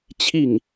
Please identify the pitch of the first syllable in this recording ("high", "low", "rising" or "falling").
falling